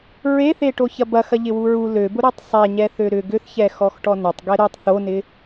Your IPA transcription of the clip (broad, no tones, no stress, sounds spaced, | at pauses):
ɹ e θ e ʈ o ç ɐ b ɐ x ɐ ʎ ɪ w u ɹ u l ø b ʊ ɾ y tˤ sˤ ɛ ɲ ɛ θ ø ɾ ʏ ɡ ʏ θ ç ɛ x ɔ x ʈ ɔ n ʏ tˤ ɡ ɛ ɾ ø tˤ θ o n ɪ